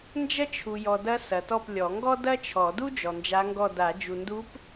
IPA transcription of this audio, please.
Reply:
n d͡ʒ ɐ˥ t͡ʃʰ u˨ j ɔ˨ d ɐ˧˥ s ɐ˨ t ɔ˦˨ p lʲ ɔ˨˩˦ ŋ ɡ ɔ˥ d ɐ˥ t͡ʃʰ ɔ˨˩˦ d u˥ d͡ʒ ɔ˨ n d͡ʒ a˧˥ ŋ ɡ ɔ˦˨ d a˨˩˦ d͡ʒ u˨ n d u˧˥ p

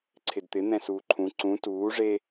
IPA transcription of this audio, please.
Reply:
ǀʰ ɪ d t̪ ɪ n̪ ɛ̃ s uː ǃʰ ũ ǀ ũ t uː ʐ e

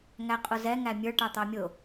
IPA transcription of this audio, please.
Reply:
ŋ æ qʼ ʊ z ɛ ŋ æ mʲ ə˞ ʈ ɑ t̪ ɑ mʲ ʊ

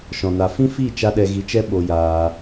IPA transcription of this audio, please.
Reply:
ʃ ɔ̃˨ n a˨ f ĩ˦ f i˦˨ t͡ʃ a˦ ɗ ɛ˧ ɣ i˧ t͡ʃ ɛ˦ ɓ o˧ j aː˧

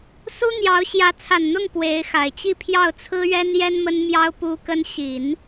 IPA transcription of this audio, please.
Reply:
s u˥ n̪ j ɑ˧˥ ʊ̯ ɕ j ä˧˥ t͡sʰ a˨˩ n n̪ ʊ˥˩ ŋ p w e˧˥ ɪ̯ x a˨˩ ɪ̯ t͡ɕ i˥˧ pʰ j ɑ˥˩ ʊ̯ t͡sʰ ɹ̩˥ ɥ ɛ˥ n j ɛ˥ n m ə˥ n m j ɑ˥ ʊ̯ p u˥ k ə˥ n ɕ i˨˩˦ n

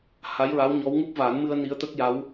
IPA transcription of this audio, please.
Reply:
h a˧˥ j ɹ a˧˥ w ɲ ɔ˧˥ w ŋ u˦˥ p̚ v a˨˩˦ n m ɨ˧ ə̯ n i˧˥ ə̯ t̪ ə˦˥ k̚ j a˧˥ w

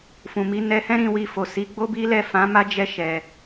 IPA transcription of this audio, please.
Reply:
f ũ˨ m i˨˦ n ɛ˧ h ɛ̃˦ ɾ ĩ˧ w i˧ f o˨ s i˨˦ ɡ͡b o˦ b i˦ l ɛ˦˨ f ã˨˦ m a˦ d͡ʒ ɛ˧ ʃ ɛ˨

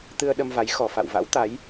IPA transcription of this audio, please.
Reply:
t̪ ɨ˧ ə̯ ɗ ə˧ m v a˨˦ j x ɔ˨˩ f a̰˧˨ w v a̰˧˥ w t̪ a˨˦ j

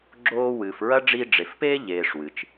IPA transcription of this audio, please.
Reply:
ɡ͡ǁ oː˦ w ɨː˨ f ɹ ɐ˥ ɖ͡ʐ i˦ ɖ͡ʐ e˨ f p eː˥ ʎ eː˨ ʂ w ɨ˩ t͡ʃ

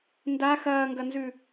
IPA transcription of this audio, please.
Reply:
n d a x ɐː ŋ ɡ ɐ n z ʉ

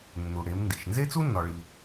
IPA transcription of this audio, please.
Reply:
nː u˩ ɽ e˩˧ m n d i˩ ʃ n z e˥ t͡s u˥ nː ɒ˩ ɭ i˩

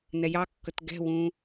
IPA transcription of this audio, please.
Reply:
n ɛ j ɑ kː ɵ t ɡ ɛ̤ w ũ

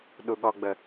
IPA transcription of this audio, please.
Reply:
ɗ u ɠ ɔ ɡ͡b ə

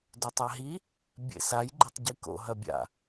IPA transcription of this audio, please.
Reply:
d o tˤ a ɦ i | bʲ ḛ s a j ɡ͡ǃ ɘ tˤ ɟ i k o̰ ɦ ɐ bʲ a̰

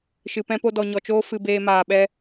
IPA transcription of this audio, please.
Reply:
ʃ ɨ˧ p ɛ̃˦ p o˦ d ɔ˧ ɲ ɔ˧ t͡ʃ oː˦ f ɨ˧ b eː˧ m aː˧ ɓ ɛ˦

